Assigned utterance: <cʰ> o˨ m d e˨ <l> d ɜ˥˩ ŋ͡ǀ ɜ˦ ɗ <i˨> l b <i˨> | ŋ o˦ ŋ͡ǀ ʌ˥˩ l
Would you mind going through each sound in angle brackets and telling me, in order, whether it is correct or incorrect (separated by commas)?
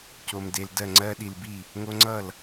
incorrect, correct, correct, incorrect